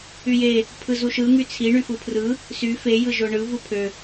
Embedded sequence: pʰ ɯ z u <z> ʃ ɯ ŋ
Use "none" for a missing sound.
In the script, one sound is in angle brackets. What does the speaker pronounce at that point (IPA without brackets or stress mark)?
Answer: none